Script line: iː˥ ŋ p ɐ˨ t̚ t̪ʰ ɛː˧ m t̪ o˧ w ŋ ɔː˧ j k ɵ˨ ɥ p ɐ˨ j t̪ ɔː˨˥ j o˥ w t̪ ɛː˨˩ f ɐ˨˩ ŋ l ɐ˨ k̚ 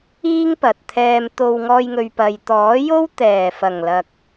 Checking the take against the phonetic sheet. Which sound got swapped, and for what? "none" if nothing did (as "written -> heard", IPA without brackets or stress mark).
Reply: k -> ŋ